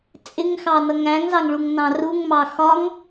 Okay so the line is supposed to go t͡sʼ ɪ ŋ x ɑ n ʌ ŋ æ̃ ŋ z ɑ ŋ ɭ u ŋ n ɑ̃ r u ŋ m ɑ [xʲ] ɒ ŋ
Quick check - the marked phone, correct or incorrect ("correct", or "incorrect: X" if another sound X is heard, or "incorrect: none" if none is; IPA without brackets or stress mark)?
incorrect: x